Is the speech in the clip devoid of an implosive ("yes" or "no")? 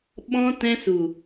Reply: no